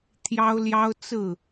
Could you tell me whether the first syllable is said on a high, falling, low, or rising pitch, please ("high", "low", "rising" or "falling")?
high